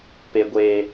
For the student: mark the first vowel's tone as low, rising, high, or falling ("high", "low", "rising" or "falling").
high